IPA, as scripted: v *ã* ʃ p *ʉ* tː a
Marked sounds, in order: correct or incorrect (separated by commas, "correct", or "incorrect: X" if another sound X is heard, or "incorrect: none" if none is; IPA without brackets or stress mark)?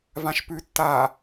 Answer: correct, correct